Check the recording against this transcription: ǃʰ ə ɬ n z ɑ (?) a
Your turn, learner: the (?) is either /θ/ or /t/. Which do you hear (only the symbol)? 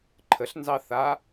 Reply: θ